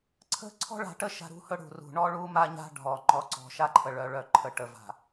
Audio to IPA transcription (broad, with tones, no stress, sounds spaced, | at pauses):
ǀʰ ə̤˦ ǀʰ ɔ̤˦ ɭ a̤˨ ʈ ə˦ ʃ a̤˦ ɾ ṳ˦ h ɵ˦ ɽ ṳ˨ r ṳ˨ ɳ ɔ˦ ɭ u˦ m a˦ ɲ a̤˦ ɖʱ ɔ˨ ŋ͡ǃ ɔ˨ ǀ ɔ̤˨ ʃ a˦ ǃʰ ə˨ ɭ œ˨ ɭ œ˨ ǃʰ ə˨ ʈ ə˨ v a̤˨